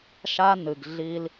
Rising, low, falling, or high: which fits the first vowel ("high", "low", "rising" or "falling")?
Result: high